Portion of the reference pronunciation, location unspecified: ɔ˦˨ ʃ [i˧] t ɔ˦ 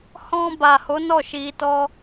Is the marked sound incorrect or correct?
correct